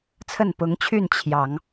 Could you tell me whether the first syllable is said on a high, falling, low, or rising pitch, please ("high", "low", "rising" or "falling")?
falling